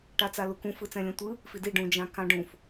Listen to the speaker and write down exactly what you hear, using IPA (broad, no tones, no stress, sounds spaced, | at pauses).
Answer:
ʈ a t͡s a l u k ũ f ɯ t͡s ɛ̃ lʲ ɛ̃ tʷ ɯ | f i d i ɖ ũ d͡ʒ ã k ã ɖ ũ f